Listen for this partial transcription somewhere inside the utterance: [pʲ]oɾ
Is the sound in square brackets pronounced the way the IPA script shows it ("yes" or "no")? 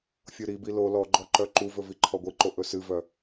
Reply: no